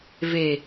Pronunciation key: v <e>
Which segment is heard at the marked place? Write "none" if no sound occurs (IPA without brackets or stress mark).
e